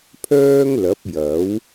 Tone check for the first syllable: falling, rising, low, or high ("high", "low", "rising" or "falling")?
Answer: high